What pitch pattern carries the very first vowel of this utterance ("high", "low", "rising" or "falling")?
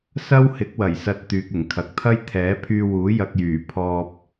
high